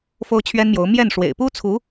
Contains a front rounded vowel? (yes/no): no